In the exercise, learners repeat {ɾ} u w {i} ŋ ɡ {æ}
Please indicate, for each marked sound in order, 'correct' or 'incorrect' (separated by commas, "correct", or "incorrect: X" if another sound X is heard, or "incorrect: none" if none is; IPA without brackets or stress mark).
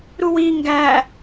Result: correct, correct, correct